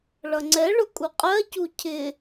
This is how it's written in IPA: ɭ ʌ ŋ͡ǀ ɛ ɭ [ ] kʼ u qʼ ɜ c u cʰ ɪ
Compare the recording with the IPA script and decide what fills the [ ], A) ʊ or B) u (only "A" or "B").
A